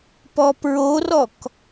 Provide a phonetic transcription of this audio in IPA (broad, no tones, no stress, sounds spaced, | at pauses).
p ɔ p ɹ o r ɔ k